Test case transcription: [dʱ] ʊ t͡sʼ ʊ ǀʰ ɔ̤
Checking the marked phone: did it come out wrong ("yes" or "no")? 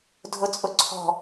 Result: no